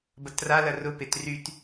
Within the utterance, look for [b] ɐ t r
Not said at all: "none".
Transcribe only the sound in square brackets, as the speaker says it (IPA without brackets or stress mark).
b